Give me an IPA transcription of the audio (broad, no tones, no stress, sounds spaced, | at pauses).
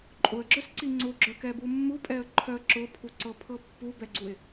ǃʼ ʊ ə̯ ɡ͡ǁ œ s ǀ i ŋ͡ǀ ʊ ɡ͡ǁ œ k ɛ b u mː u pʼ ɛ ə̯ ǃʰ œ ə̯ ǁ ʊ pʰ u ǀ ɤ pʰ ɤ pː u b ɛ ɡ͡ǀ u ɪ̯